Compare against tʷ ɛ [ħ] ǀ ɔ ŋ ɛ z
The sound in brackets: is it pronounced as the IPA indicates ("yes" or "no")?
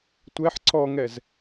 yes